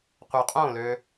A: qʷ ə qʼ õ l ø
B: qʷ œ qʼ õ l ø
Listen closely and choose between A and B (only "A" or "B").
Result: B